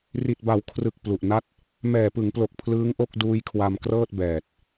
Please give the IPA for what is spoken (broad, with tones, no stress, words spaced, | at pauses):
ri˨˩t̚ba˩˦wkʰrɯ˨˩k̚ plu˨˩ʔ na˦˥t̚ | mɛː˨˩pɯ˩˦ŋplo˨˩k̚ pʰlɯː˦˥ŋʔo˥˩k̚ duː˦˥jkʰwa˧m krɤː˥˩t̚bɛː˨˩t̚